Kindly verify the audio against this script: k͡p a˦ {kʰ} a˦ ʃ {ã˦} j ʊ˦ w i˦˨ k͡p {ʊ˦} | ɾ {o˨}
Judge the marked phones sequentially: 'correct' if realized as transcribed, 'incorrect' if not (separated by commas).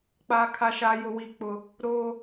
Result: correct, incorrect, correct, incorrect